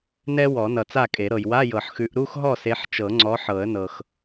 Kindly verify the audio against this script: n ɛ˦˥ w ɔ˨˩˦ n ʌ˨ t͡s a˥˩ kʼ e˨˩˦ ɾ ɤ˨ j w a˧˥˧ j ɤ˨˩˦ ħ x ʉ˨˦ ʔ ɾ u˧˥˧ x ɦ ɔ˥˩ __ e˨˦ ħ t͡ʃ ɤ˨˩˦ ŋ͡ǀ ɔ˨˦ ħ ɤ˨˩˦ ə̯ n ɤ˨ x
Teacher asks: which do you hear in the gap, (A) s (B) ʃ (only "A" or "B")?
A